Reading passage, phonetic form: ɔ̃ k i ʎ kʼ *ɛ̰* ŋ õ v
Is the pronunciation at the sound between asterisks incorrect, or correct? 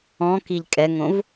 incorrect